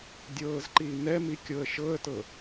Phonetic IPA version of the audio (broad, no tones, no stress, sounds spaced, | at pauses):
dʲ ɤː z ǃ iː n ɛ m i kʲ ɤ ə̯ ʃ ɤ ə̯ t ɤ